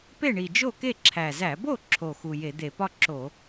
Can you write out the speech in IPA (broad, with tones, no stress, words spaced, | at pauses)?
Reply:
pe˥˩ɳi˨˩d͡ʒo˥˩ke˥˩ ǁʰæ˨˩zæ˧˩˧bo˥˩ǁʰo˨˩ xu˨˩je˧˩˧d̪e˧˩˧pɒ˥˧ ǁo˧˩˧